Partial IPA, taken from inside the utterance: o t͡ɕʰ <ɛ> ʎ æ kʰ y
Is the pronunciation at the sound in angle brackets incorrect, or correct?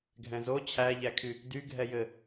incorrect